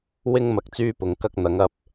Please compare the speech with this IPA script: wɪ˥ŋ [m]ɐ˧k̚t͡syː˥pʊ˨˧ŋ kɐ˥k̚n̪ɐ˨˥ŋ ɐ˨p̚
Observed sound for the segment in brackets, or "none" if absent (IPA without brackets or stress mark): m